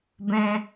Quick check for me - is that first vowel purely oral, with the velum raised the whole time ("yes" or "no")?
no